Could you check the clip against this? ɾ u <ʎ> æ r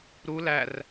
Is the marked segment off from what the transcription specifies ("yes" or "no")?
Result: yes